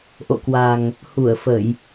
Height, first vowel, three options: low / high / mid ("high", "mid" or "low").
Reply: mid